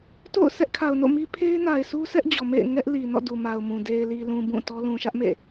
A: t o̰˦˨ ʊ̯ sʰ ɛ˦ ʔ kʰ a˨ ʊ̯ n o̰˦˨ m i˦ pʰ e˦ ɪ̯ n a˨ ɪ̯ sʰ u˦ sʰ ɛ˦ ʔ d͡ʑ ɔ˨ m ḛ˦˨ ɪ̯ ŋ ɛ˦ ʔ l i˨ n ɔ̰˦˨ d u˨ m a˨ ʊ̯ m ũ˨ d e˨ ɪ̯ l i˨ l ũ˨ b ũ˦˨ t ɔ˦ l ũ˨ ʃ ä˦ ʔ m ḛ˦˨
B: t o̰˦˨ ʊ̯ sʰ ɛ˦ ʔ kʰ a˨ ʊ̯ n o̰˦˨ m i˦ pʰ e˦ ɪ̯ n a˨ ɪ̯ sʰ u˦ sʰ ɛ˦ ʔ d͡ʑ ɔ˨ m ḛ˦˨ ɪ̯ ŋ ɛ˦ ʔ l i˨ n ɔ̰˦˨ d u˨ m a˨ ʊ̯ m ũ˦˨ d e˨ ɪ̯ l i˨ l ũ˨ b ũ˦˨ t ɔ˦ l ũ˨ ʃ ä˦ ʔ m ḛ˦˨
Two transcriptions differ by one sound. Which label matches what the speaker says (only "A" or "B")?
A